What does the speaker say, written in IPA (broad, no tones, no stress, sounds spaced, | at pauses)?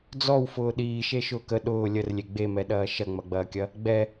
d͡z ɔ w f ʊː ɗ iː ʃ e ʃ ʊː k ə ɗ ʊː lʲ ə r lʲ e ɡ͡b e m ɛ ɗ ɐː ʃ ɐ ŋ͡m ɐ ɡ͡b ɐː kʲ ɐ | ɡ͡b ɛ